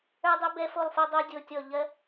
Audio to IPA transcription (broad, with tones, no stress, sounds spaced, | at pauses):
ə˞˥ dˤ ɜ˥ b ɛ˥ f o˥˧ lˠ f o˥ dˤ o˥ dʲ o˥˧ tʲ ɔ˥˧ ʎ ɜ˥